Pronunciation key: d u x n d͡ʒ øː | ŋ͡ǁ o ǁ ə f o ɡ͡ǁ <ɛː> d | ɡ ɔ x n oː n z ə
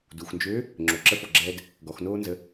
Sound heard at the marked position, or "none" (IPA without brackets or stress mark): ɛː